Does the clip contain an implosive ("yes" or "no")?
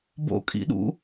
yes